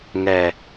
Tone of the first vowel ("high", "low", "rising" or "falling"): low